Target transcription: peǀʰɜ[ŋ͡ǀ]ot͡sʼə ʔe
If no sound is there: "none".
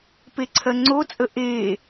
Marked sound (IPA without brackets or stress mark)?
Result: ŋ͡ǀ